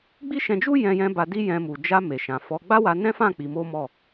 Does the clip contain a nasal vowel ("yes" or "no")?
yes